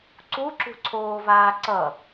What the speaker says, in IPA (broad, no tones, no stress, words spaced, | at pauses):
ǀuǁṳǀʰoːvaː ǀʌ